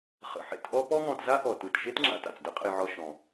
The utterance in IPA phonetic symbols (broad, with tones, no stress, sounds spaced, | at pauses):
χ ə̰˩ ħ ḛ˧ t ʔ ɔ˥ p ɔ˥ ŋ ɔ̃˧ t z a˥ ʔ ɔ˩ t ɯ˩ t ʃ e˥ t ŋ͡ǁ a̰˧ t a̰˩ t͡s d ə˥ qʼ ə̰˧ j ʕ ɔ˧ ʃ ɔ̃˩